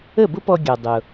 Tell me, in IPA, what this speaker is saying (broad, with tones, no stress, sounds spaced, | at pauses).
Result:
ə˥˩ b ʊ˥ p ɔ˧ ɡʲ ɔ˩ dˤ ʊ˩